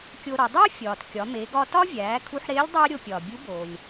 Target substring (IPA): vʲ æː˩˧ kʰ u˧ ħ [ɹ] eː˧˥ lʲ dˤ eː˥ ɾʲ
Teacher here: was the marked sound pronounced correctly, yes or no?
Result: no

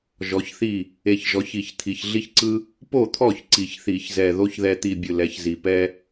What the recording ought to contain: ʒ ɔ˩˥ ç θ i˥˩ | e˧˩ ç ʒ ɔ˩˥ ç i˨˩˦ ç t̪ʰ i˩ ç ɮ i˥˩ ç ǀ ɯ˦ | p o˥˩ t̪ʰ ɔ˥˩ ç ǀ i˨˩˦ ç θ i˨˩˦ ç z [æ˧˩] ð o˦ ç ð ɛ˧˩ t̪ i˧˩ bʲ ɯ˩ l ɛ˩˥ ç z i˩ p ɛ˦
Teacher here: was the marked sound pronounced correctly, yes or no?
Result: no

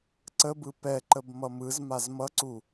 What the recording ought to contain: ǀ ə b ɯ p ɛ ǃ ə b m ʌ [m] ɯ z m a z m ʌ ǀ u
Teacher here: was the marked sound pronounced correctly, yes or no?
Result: yes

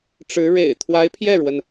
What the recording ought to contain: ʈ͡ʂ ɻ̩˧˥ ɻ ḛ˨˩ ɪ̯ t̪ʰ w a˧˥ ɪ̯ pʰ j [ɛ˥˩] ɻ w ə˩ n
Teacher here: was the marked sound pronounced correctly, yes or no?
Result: yes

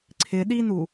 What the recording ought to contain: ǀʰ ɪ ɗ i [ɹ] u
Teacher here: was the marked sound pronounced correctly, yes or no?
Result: no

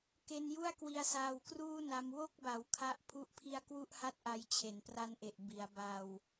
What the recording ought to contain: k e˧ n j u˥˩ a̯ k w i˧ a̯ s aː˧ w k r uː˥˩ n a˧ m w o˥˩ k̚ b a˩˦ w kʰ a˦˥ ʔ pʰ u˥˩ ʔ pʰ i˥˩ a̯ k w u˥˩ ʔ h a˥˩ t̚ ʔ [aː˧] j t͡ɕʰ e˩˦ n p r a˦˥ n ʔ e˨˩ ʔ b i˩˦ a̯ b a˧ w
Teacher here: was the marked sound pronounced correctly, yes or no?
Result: no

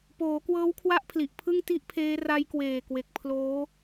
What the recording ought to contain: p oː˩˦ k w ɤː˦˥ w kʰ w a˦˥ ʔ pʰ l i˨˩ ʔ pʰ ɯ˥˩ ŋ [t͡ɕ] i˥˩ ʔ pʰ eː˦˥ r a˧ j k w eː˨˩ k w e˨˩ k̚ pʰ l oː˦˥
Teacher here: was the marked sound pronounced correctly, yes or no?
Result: no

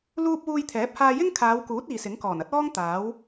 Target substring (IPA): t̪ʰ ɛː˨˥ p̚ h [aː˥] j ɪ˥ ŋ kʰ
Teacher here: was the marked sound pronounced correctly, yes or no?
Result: no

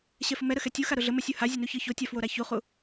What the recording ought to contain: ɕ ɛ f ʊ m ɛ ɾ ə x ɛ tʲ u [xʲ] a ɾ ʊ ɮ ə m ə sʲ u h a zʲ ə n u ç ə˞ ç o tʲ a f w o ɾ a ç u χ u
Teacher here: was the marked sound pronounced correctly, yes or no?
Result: no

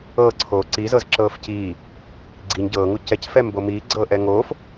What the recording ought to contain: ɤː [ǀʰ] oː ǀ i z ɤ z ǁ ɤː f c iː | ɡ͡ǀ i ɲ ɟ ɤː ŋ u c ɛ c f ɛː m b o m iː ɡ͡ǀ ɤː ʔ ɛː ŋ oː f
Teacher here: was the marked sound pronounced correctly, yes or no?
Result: yes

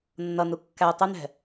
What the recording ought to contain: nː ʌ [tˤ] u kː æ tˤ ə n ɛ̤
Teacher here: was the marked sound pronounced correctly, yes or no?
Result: no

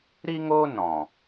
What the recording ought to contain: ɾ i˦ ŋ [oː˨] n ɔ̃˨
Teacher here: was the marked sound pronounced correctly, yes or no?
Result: no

